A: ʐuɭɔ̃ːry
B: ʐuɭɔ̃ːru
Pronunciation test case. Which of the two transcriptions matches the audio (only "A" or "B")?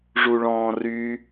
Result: A